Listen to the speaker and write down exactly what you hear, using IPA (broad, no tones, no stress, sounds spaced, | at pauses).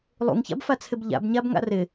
lˠ ṵ ŋ ç a̰ b f a t͡sʰ ɪ b ʎ a̰ b ɲ a b ŋ a̰ r ɪ